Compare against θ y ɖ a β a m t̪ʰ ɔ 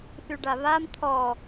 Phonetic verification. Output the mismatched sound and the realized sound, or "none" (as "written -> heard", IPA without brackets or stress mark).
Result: none